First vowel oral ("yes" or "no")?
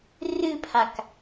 yes